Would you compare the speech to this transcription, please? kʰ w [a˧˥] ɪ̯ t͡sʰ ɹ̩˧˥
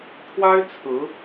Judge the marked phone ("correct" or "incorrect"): incorrect